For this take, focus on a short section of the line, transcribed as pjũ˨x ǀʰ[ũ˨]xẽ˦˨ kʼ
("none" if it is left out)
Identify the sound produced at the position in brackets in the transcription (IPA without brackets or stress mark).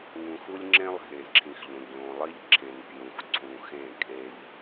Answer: ũ˨